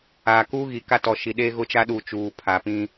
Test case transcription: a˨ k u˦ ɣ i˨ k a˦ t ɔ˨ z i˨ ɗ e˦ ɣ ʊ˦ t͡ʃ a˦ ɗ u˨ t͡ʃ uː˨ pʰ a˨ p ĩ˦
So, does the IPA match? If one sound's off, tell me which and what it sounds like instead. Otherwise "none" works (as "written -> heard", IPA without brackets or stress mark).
z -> ʃ